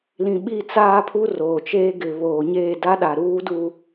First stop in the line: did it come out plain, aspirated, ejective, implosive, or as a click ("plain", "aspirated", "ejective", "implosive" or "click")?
implosive